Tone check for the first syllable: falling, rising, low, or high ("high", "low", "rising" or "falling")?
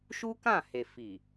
high